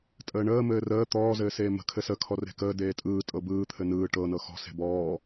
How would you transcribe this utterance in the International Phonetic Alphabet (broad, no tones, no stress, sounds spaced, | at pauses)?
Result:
tʼ əː ɳ əː m ɘː r əː t̪ ɔː z ɘː s eː m ə̤ kʰ ɘ s ə kʰ ɔ r e̤ k əː d eː tʼ ɯː tʼ ɤ b ɯː t̪ʰ ɘ n ɯː ʈ ɤ n ɤ x ɔ̤ s e̤ b ɔː